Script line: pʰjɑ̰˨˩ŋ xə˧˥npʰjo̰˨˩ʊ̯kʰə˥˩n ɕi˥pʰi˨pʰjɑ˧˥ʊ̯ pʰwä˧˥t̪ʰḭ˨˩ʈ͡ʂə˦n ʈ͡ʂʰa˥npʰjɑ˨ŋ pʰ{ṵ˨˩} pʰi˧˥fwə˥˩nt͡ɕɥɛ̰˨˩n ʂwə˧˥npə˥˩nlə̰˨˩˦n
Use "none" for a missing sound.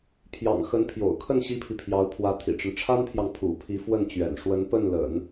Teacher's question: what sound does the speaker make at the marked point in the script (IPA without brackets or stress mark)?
ṵ˨˩